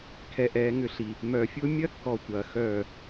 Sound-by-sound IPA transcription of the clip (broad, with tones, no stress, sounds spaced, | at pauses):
kʰ ɛ˨ ʔ ɛː˨˦ ŋ ʏ˦˨ ɬ i˨ | m œ˨ fʲ ʊː˦ mʲ ɐ˦ kː ɔ˨ tʷ ɐː˨ x œː˦˨